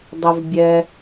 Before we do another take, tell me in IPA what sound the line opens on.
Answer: dˤ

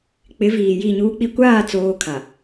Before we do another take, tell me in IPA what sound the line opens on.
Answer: k͡p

